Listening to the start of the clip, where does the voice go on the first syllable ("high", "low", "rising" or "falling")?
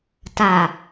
low